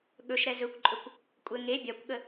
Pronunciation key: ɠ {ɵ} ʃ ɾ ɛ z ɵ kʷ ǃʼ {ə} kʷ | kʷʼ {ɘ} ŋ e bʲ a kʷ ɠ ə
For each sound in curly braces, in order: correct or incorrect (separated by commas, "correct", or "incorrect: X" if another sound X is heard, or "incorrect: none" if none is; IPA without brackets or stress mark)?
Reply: correct, incorrect: ɵ, correct